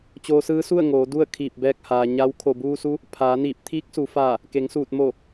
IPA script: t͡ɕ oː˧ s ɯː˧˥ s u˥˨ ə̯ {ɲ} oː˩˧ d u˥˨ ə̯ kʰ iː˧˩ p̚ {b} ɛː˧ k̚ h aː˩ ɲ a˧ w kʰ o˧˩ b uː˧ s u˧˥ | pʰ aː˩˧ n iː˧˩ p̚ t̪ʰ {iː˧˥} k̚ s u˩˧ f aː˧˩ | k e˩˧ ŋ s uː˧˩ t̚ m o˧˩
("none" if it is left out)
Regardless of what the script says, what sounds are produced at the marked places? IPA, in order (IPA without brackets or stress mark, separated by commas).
ŋ, b, iː˧˥